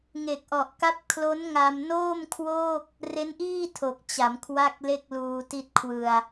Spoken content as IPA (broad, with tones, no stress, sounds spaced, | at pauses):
ŋ e˨˩ k̚ ʔ ɔ˨˩ ʔ k a˦˥ p̚ kʰ l o˦˥ n ŋ a˧ m n oː˥˩ m kʰ w oː˥˩ k̚ | r e˦˥ n ʔ iː˥˩ tʰ o˨˩ k̚ t͡ɕ a˩˦ m kʰ w a˥˩ k̚ l e˥˩ k̚ l uː˧ t i˥˩ t̚ kʰ w ɯ˧ a̯